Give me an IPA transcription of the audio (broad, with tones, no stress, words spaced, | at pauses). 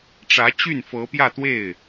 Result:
ʈ͡ʂä˧˥ t͡ɕy˥˩nfɤ˧˥pjä˥˧t̪we˥˩ɪ̯